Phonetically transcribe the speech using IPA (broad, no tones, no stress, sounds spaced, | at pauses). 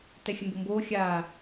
t ɛ xʲ ə m b o m b oː xʲ aː